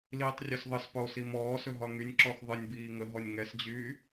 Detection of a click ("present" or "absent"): present